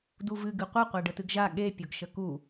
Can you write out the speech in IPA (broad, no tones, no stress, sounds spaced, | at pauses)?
d u v ɨ ɡ ɨ qʷ ə qʷ a ɖ ə t ɨ ɡ ʒ a ɠ e pʲ ʊ ɡ ʃ ə k u